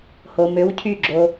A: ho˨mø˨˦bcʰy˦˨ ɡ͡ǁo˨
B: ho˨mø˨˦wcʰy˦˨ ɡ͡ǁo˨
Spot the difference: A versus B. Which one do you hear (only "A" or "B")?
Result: B